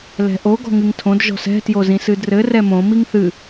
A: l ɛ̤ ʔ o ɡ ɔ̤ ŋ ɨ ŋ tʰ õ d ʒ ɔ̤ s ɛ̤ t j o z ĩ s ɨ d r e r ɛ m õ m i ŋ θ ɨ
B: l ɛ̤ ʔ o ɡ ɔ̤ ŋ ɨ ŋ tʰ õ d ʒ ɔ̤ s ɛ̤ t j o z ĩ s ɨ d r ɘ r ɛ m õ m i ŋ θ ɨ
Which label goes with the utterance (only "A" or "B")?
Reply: B